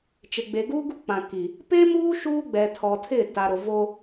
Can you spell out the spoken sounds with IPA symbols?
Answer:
t͡ʃ ɪ˨ ɡ͡b e˨ ɡ uː˦ ɡ u˦ k͡p ã˨ k i˨ | p e˦ m uː˦ ʃ uː˦ ɡ͡b ɛ˨ tʰ ɔ˨ tʰ ɪ˦˨ t a˨ ɾ ʊ˨ v o˦

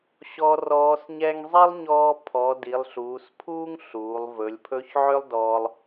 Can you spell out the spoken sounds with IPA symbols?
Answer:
ɕ ɔ˧˥ r ɔː˧˥ s ɲ ɛ˥ ŋ zˤ i˥ lˠ ɲ ɔː˧ pʰ ɔ˩˧ d i˩˧ lˠ ɬ uː˩˧ s pʰ uː˥ ŋ ɬ uː˩˧ lˠ v ɵ˩˧ lʲ pʰ ɵ˧˥ ç ʕ ø˥ lˠ d ɔː˧ lˠ

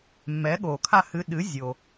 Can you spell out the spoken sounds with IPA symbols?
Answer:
mː ɛː˩˥ ɠ oː˩ kʰ a˥˩ h ɨ˧ ɗ ɨ˩˥ zʲ o˩

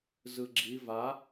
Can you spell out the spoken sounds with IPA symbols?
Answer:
z ɯ ɡ͡ǁ i v a

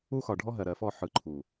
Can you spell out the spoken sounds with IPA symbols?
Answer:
u˦ x ɒ˨ ɖʱ ɔ˦ ɦ ɜ˨ ɾ ɜ˨ f ɔ˦˨ ħ ɯ˨ ǃʰ u˨

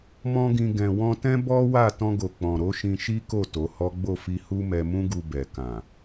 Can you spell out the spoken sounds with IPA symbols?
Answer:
m ɔ̃˦ ɡ ĩ˧ ɡ ɛ̃˨ w ɔ̃˧ t ɛ̃˦ b ɔ˦ w a˦˨ t ɔ̃˧ ɡ o˨ k͡p ɔ̃˨ ɾ o˨˦ ʃ ĩ˧ ʃ i˦ k o˦˨ t o˨˦ h ɔ˦ ɡ͡b o˦˨ f i˧ h u˦ m ɛ˧ m ũ˦ ɡ u˧ b ɛ˨ k ã˨

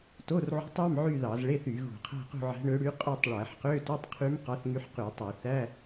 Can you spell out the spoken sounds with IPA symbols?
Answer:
t o˧˥˧ r ʕ o̤˧˥ tˤ ɑ˧˥˧ m ʕ y˥˧ ð ɑ˧˩˧ z ɭ e˧˥˧ θ y˧˩˧ ɣ ṳ˧˩˧ qʰ æ̤˥˧ q ṳ˥˧ ʕ æ̤˧˥ ɳ ø˧˥ ɽ y˧˥ qʼ ø˥˧ tˤ ɭ æ˧˩˧ ħ q ø˧˥˧ t u˧˥˧ tˤ qʰ y˧˥ m q ɑ˧˥ θ ŋ y˧˥ ħ q y˧˩˧ tˤ æ˧˩˧ θ æ˧˥˧

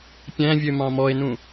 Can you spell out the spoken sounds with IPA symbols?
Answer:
pʲ æ̃ vʲ ø m ɑ̃ m ɔ e̯ n ũ

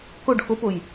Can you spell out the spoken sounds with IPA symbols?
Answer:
k ʊ ɖ x ʊ p ʊ j

